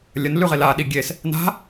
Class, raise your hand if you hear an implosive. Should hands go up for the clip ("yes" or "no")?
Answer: yes